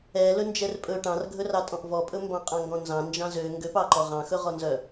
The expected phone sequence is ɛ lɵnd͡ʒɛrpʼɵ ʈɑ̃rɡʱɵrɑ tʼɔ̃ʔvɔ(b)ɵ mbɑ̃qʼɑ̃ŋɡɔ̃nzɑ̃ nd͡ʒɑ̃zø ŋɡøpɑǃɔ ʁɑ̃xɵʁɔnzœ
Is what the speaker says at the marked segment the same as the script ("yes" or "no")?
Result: no